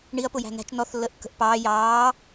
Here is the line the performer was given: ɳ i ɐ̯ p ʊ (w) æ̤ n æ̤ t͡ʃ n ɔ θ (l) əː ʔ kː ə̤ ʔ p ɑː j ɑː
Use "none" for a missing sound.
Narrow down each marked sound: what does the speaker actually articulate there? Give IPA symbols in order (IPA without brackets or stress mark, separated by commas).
j, lː